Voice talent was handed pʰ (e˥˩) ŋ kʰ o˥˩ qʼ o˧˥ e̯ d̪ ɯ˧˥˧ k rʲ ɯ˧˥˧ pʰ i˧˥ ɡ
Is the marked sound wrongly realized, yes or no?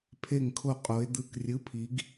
yes